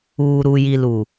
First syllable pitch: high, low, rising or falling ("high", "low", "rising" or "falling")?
low